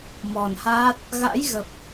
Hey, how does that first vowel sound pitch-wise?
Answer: low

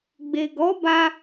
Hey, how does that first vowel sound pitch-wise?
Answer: low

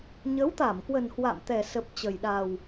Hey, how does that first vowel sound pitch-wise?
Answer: rising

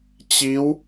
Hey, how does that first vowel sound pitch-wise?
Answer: rising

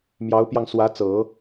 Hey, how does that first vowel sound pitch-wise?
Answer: rising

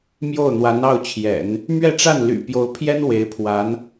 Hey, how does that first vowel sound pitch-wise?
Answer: falling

